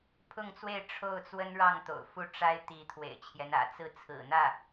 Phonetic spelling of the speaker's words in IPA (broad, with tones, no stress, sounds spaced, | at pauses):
pʰ ʊ˥˧ ŋ t͡s w e˥˧ ɪ̯ ʈ͡ʂʰ o˥˩ ʊ̯ t͡s w ə˥ n ɻ ɑ˥˩ ŋ t̪ o̰˨˩ ʊ̯ f u˥˩ ʈ͡ʂ a˥ ɪ̯ t̪ i˧˥ t̪ʰ w ḛ˨˩ ɪ̯ t͡ɕʰ j ɛ˦ n ä̰˨˩ t͡s ɹ̩˥˩ t͡sʰ ɹ̩˨˩ n̪ ä˥˩